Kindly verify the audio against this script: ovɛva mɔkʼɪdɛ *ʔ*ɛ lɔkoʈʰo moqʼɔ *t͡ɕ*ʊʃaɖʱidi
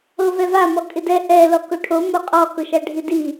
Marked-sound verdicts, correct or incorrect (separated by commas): correct, incorrect